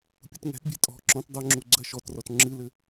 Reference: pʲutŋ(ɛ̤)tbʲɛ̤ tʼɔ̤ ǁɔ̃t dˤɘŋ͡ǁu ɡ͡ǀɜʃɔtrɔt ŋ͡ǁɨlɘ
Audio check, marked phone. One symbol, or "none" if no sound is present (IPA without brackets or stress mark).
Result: ɛ̤